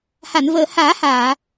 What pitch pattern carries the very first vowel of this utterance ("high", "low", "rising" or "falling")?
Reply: low